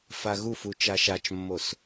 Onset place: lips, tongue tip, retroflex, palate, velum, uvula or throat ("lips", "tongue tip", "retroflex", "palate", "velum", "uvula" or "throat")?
lips